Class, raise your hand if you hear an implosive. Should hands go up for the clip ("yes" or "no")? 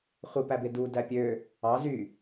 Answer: no